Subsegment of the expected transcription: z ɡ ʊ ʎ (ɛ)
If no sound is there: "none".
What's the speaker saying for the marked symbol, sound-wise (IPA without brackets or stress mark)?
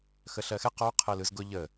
ə